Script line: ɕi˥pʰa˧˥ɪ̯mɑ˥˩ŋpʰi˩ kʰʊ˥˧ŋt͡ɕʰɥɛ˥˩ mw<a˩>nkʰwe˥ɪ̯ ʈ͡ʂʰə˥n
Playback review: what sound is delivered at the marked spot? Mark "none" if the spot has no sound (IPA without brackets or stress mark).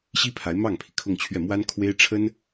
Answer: a˥